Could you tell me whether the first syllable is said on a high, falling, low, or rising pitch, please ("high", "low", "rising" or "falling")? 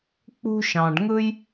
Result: high